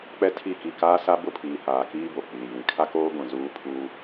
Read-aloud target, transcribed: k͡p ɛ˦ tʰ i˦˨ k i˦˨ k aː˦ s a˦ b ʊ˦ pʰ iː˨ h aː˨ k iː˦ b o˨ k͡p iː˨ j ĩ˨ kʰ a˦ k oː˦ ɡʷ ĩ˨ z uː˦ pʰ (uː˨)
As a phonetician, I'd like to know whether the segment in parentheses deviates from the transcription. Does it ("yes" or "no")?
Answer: yes